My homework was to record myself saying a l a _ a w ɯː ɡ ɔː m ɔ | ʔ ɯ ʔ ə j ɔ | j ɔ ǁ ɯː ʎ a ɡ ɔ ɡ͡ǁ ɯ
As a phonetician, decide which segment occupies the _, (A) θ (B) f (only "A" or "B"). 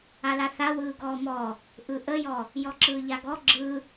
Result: A